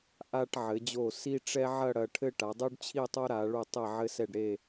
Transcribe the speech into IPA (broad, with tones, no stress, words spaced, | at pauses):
ʔa˧ʈʕɘ˩˧d͡ʑo˧˩ si˥ ʈ͡ʂɛ˥ʕɐ˥˧ɽɐ˧ ʈʰɘ˥˧ʈa˩˧dˤu˥ɖt͡ɕʰi˥˧ tˤo˥ɾa˩˧ɭu˧˩ tˤe˧˩ʕɘ˧sɛ˧˩ɖ ɾe˧˩